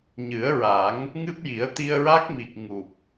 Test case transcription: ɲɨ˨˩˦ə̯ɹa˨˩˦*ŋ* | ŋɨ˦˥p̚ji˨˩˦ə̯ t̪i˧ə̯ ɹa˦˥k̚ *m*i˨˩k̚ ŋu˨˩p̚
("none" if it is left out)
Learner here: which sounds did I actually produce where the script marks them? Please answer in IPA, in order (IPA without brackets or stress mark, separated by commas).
ŋ, m